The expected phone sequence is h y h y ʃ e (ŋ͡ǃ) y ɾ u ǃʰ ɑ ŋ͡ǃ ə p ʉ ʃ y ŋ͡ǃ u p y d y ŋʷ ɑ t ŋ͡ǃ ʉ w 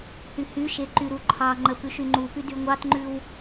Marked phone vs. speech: incorrect: ǃ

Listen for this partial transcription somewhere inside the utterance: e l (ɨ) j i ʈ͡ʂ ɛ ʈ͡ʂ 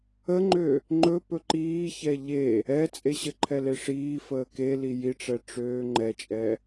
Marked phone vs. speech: incorrect: i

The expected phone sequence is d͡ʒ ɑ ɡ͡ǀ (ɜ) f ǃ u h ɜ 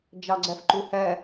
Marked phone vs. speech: correct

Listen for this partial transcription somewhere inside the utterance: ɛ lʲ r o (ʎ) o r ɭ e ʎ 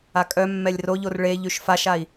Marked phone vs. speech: correct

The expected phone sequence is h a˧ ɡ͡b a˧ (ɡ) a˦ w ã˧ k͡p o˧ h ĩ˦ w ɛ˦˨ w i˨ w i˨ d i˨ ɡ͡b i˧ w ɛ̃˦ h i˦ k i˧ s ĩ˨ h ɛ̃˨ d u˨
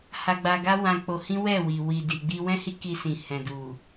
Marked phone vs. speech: correct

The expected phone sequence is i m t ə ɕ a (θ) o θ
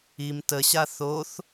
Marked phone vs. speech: correct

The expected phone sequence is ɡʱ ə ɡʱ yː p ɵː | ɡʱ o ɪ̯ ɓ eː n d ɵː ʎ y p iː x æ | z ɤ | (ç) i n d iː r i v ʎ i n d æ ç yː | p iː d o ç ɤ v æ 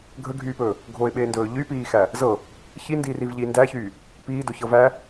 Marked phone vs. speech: correct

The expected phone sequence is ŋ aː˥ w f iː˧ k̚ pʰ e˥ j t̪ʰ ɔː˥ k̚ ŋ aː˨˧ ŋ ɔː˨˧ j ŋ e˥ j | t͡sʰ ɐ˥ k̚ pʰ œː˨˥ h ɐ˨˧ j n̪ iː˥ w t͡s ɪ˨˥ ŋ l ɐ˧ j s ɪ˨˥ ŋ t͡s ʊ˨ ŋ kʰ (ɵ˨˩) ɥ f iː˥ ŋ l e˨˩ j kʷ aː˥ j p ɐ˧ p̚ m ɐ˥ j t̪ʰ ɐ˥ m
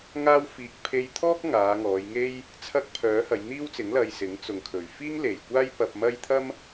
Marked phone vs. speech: correct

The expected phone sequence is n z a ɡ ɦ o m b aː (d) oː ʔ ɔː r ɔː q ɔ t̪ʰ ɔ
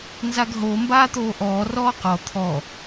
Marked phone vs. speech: incorrect: t̪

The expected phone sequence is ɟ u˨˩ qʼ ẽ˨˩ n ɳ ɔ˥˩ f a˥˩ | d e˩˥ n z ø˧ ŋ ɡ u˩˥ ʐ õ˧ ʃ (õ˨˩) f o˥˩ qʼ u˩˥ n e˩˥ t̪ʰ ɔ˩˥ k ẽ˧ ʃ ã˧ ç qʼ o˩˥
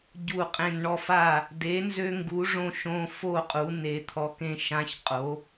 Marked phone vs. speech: incorrect: õ˧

